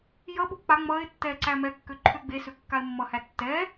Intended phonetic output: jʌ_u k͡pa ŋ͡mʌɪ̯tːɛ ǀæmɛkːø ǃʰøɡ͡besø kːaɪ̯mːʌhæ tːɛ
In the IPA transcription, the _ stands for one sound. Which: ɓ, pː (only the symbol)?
ɓ